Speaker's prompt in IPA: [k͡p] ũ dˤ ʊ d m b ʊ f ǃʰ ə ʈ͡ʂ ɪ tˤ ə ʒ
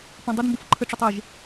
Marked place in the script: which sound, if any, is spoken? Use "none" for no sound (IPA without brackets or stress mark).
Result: p